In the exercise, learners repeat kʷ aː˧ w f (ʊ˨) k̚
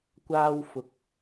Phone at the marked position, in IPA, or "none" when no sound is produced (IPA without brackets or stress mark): ʊ˨